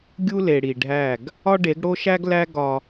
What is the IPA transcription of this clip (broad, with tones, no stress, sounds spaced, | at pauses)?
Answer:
ɡʲ u˦ l e˨ ɽ i˨ ɖʱ æ˦˨ ɡ | ɒ˦ ɖ e˨˦ ɡ ɽ o˦ ʃ æ˦ ɡ l æ˦ ɡ ɒ˦